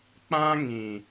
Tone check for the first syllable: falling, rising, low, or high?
high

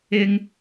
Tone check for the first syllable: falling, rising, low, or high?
high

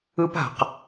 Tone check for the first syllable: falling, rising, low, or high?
high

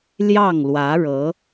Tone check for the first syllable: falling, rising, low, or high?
falling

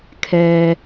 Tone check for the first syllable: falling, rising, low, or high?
low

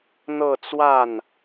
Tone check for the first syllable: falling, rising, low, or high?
falling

